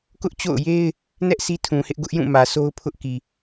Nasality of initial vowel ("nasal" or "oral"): oral